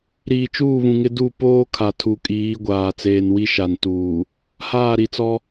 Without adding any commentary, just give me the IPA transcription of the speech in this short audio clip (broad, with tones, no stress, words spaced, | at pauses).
ɾiː˨t͡ʃuː˦˨βũ˨ŋɪ˦ du˦˨ poː˦ kʰa˨tʰu˨kʼiː˨˦ɡʷaː˨ t͡seː˨nwi˦ ʃa˨n tuː˨ | haː˦˨ɾi˨t͡sɔ˦